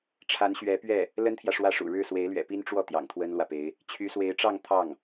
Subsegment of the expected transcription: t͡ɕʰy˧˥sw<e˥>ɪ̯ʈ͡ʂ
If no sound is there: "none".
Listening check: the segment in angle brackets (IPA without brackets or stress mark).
e˧˥